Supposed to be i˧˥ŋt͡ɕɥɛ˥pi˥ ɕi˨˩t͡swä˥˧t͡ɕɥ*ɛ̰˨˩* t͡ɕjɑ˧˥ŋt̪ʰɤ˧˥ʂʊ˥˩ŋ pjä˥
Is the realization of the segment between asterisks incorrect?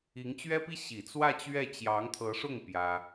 yes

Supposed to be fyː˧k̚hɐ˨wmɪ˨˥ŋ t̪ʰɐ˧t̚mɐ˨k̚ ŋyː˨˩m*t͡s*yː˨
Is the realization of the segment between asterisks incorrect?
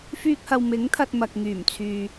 yes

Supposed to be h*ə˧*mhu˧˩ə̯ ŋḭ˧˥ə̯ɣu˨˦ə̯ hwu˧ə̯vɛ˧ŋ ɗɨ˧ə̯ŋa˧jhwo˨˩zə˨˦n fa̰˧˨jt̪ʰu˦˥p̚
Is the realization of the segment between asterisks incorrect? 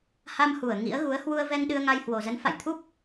yes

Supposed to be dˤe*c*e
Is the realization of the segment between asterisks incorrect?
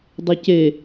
no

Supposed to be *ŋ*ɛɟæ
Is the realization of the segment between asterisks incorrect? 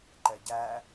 yes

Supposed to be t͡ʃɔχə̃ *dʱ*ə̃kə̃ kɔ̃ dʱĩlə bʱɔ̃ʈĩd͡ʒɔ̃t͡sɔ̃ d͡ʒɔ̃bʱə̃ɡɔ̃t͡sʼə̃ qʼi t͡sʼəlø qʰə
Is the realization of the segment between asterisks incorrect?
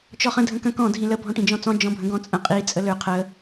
no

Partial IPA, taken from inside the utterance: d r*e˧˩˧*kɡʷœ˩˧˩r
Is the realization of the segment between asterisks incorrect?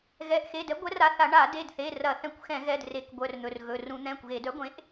no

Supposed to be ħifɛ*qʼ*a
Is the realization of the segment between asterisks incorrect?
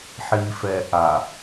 yes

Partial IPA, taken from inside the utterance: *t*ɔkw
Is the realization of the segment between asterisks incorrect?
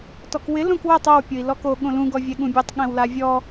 no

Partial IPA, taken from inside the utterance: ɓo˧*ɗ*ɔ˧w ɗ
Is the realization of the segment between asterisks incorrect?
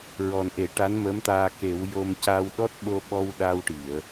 yes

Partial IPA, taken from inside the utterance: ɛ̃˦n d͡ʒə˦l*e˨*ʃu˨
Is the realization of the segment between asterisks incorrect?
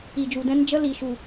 yes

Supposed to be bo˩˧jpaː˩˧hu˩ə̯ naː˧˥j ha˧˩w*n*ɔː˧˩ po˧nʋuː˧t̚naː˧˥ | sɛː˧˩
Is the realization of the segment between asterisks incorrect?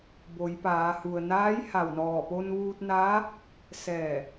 no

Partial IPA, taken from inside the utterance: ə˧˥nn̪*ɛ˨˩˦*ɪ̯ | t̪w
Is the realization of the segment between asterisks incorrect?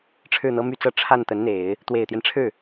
yes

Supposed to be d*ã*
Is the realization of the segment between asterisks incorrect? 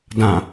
no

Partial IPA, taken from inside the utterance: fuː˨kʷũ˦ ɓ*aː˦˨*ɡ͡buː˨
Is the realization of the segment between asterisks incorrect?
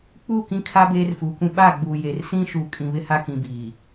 no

